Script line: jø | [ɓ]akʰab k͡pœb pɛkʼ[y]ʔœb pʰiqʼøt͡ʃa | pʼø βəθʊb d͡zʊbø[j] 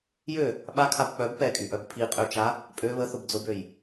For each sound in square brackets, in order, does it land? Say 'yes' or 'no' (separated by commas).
yes, yes, yes